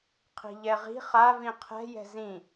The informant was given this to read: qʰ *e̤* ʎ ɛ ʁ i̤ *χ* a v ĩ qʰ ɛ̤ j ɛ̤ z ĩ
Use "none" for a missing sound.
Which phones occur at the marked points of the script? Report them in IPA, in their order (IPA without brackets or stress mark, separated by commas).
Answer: i̤, χ